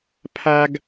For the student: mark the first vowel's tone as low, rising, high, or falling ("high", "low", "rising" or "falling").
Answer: high